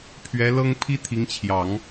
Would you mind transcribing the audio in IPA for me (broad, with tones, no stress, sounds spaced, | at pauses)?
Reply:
pʰ ɥ ɛ˧˥ l ɤ˥ ŋ pʰ i˥ t̪ʰ i˧˥ ŋ t͡ɕʰ j ɑ˨˩˦ ŋ